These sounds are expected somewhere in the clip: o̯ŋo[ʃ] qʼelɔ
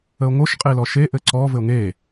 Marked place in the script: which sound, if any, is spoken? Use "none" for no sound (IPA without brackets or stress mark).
ʃ